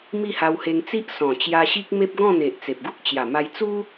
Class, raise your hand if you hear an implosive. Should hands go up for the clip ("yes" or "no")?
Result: no